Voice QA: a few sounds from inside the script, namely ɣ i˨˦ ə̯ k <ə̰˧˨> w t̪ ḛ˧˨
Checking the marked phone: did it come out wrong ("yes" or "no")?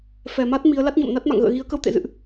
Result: yes